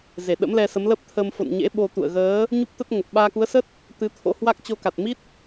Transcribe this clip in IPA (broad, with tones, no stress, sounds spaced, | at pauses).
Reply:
z e˧˩ ɗ ə̰˧˥ m l ɛ˧ s ə˨˦ m l ə˦˥ p̚ t̪ʰ ə˧ m f o̰˧˨ n ɲ ḛ˧˥ ɓ o˧ t̪ ṵ˧˨ ə̯ ɣ əː˨˦ | ɲ u˦˥ p̚ t̪ ə˦˥ t̚ ŋ ə˨˩ p̚ ɓ aː˧ k u˨˦ ə̯ s ə˦˥ t̚ | t̪ ɨ˨˦ t̪ʰ o̰˧˥ h w a˦˥ k̚ t͡ɕ o˧ k a˨˩ t̚ m i˦˥ t̚